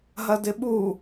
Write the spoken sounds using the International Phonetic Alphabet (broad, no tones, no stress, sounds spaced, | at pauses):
ɦ ɐ d ɪ ɓ u